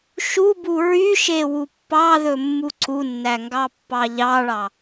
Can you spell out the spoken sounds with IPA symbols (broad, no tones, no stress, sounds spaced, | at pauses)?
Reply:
ʃ u b u ɹ y ʃ e w u pː ɑ ð ɵ mː u ǀ u nː æ ŋ ɡ ɑ pː ɑ ʎ ɑ ɭ ɑ